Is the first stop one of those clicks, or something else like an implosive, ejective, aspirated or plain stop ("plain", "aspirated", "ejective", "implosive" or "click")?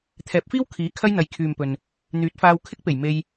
aspirated